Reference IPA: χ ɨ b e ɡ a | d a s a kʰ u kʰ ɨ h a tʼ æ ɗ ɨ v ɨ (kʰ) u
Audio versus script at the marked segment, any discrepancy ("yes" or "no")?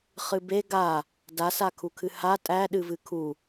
no